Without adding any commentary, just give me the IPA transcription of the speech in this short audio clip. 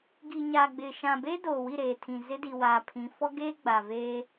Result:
ɡ i˨ ɲ a˨ ɡ͡b ɪ˨ ʃ ã˨ b e˦ d oː˨ w i˦˨ ɾ eː˨ tʰ ĩ˨ z ɪ˦ d i˨ w aː˨ pʰ ĩ˨˦ f ɔ˦ ɡ eː˦ ɡ͡b a˨ v eː˦

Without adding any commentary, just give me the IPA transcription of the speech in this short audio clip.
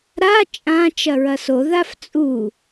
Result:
ɾ a t͡ʃʼ ã t͡ʃ ɐ ɹ ɐ s o ð a f t͡sʼ u

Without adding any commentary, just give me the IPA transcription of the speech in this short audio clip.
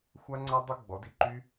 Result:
xʷ a˦˥ ŋ͡ǀ a˦˥ dˤ o˦˥ ɡ͡b ɔ˩˥ d i˧ ǃ y˦˥

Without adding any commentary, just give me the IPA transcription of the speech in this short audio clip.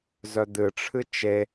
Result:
z œ d̪ ɨ ʈ͡ʂʰ ɨ t͡ʃ e

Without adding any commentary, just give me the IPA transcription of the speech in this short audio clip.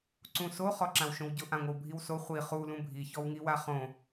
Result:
ǀ ũ s o χ ɔ ǁ ã w ʃ õ w ɟ ʊ ʔ ã ŋʷ ɪ w bʱ i w s o χʷ i χ u l ũ bʱ i ç ɔ w ŋ i w a χ õ

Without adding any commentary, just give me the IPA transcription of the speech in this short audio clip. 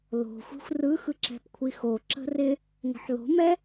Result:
l o̤ xʷ i̤ xʷ r ɯ x ɯ ǁ ɛ̤ p kʷʰ i x o ǁ ə̤ r ɪ | ŋ ə̤ ħ l o̤ m ɛ

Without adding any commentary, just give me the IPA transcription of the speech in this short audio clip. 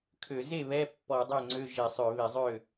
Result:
kʰ ø˧˩˧ z e˥˩ β ɛ˧˥˧ pː ɔ˧˩˧ dˤ e˥˩ ŋ͡ǀ ø˧˥˧ ʒ e˧˩˧ sˤ ø˧˩˧ β e˧˩˧ zˤ ø˥˩

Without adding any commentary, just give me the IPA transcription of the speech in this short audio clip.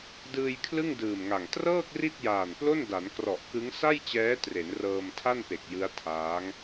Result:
d ɯː˧ j kʰ l ɯ˥˩ ŋ d ɯː˨˩ m ŋ a˨˩ ŋ t r ɤː˥˩ k̚ r i˥˩ t̚ j aː˨˩ n p l o˥˩ n d a˩˦ n k r ɔ˨˩ ʔ k ɯ˦˥ ŋ s a˥˩ j t͡ɕ ɛː˦˥ t r e˩˦ n r ɤː˧ m tʰ a˥˩ n p e˨˩ k̚ j ɯ˦˥ a̯ tʰ aː˦˥ ŋ

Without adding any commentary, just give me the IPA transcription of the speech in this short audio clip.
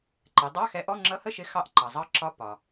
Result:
ǃ ɛ˩˧ dˤ ɑ˧˥˧ x ɛ˨˥ ʔ ɔ˧˥˧ ŋ͡ǁ ʌ˧˥˧ h ə˥˨ ʃ ɪ˨˥ x ɑ˨˥ ʔ ǃ ɑ˩ zˤ ɑ˨˥ ǁ ɒ˨˥ p ɒ˩

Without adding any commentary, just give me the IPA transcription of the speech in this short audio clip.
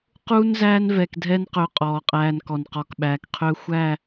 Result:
q uː˦ n z æː˦ n v ɛ˨ k dʱ ɛ˦ n q ɵː˦ qʼ ɔː˨ qʼ æː˦ n k ɔ˨ n q ɔ˨ k ɓ æː˨ k qʰ ɵː˦ xʷ æ˦˨

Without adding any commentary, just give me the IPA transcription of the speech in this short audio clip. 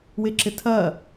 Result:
w ɪ ǁ ɪ tʰ ɐː

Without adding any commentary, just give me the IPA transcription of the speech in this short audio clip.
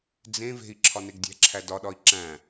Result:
d͡z ẽ v e̤ i̯ ǁʰ ɒ n e ɡ dʲ æ̤ ǁʰ æ d ɒ ɗ ɒ i̯ ǁ æ̃

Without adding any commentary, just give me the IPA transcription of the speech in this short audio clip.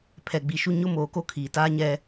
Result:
pʰ ɛ˨ ɡ͡b i˨ ʃ u˦ ɲ ʊ˦ m oː˨ k o˦ kʰ iː˨ t aː˦ ɲ ɛ˦

